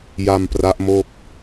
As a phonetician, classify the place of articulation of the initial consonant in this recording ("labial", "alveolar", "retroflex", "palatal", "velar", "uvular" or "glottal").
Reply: palatal